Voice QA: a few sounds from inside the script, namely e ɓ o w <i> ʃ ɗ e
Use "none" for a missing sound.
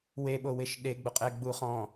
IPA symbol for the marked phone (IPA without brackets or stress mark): e